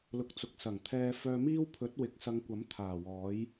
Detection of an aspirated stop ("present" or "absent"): present